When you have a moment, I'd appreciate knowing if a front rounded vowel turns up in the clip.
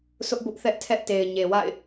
no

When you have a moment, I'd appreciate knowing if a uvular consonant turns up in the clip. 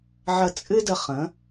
yes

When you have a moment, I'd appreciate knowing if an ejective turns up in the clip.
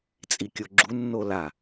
yes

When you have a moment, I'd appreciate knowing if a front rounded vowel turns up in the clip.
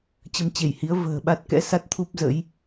no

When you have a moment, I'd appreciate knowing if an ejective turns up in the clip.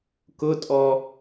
yes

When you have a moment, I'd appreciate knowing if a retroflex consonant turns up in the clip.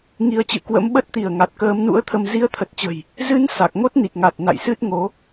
no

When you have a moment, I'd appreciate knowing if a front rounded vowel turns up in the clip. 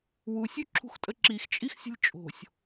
no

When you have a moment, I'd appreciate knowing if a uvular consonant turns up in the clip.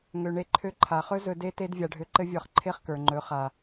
yes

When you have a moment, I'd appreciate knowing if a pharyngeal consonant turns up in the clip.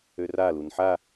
yes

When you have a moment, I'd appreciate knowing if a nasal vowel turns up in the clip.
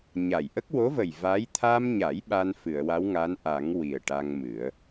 no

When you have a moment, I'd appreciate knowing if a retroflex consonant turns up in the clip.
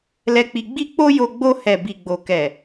no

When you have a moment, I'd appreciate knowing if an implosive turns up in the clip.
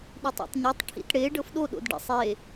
yes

